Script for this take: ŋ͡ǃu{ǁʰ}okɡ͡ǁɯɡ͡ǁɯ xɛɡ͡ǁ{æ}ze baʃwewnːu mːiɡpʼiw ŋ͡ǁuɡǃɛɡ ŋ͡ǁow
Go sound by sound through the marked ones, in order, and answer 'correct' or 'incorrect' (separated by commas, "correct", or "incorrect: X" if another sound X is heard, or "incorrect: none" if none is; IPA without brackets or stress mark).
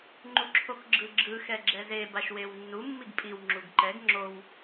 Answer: correct, incorrect: ɛ